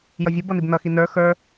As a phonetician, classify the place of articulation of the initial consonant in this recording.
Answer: palatal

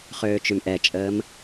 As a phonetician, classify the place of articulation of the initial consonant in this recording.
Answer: uvular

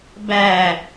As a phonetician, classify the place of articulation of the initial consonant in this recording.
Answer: labial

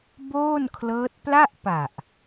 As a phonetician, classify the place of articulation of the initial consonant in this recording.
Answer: labial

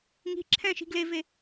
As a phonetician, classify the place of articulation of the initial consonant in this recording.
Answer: velar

